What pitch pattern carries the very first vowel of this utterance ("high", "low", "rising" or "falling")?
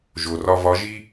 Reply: low